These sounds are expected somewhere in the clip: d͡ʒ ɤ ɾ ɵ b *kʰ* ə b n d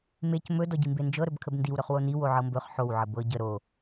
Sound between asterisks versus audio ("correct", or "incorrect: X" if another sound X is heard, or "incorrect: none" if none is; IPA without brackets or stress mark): correct